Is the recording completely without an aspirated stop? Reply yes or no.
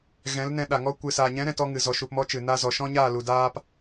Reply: yes